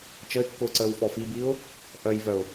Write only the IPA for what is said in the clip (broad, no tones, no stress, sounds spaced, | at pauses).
t͡ʃ ə ɪ̯ kː ʊː ǀ əː w f ɔ f i b i ʊ̯ | ʔ œ j v œ ʊ̯